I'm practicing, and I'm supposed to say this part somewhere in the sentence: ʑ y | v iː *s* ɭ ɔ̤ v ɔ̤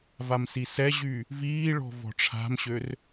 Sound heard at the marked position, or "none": none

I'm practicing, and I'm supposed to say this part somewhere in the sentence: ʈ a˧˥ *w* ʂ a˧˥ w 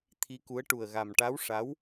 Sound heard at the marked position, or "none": w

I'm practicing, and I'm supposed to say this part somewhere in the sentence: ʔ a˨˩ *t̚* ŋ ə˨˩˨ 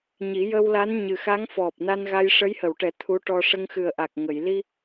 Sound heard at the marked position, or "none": k̚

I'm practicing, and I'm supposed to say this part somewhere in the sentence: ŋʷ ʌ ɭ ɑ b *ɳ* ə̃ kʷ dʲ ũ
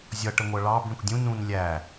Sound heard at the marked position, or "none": ɳ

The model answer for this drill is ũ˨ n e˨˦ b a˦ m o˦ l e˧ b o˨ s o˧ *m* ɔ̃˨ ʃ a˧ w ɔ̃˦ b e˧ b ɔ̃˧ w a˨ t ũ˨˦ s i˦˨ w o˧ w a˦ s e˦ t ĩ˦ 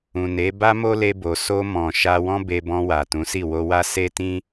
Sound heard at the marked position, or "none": m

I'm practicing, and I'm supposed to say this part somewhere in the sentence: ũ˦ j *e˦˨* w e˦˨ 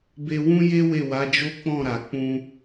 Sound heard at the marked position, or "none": e˦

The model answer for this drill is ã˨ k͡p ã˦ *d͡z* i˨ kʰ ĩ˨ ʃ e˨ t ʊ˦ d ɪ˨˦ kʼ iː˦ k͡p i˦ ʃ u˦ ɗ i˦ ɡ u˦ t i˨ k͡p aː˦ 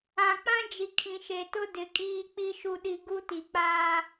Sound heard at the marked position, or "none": d͡ʒ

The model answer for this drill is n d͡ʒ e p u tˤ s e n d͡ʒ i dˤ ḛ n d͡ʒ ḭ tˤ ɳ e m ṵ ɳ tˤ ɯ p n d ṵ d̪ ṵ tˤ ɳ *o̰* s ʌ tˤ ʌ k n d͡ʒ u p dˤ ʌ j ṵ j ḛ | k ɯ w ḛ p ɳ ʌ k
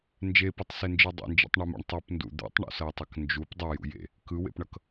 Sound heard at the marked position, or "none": ṵ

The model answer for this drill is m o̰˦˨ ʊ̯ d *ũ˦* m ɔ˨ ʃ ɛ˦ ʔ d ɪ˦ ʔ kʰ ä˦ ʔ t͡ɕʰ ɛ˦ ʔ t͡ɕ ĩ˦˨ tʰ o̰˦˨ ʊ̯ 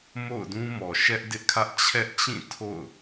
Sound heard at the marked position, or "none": ũ˦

